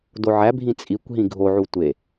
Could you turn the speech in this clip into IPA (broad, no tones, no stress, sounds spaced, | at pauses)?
d o ʕ æ bʱ ĩ t͡sʼ i kʷ ɦ ĩ ɡʱ o ʕ u tʷ e